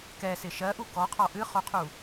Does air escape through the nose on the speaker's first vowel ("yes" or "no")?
no